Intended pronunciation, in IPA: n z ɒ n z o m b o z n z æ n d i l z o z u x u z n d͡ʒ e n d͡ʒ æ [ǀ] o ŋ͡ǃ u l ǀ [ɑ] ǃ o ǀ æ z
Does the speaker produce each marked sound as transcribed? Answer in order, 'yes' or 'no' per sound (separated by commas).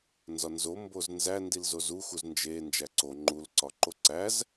yes, no